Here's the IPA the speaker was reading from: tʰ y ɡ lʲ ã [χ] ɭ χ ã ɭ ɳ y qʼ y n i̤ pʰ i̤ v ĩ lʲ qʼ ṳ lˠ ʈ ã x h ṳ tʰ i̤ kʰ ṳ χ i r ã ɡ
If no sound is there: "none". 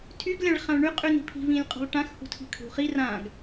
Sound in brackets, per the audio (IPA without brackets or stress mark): none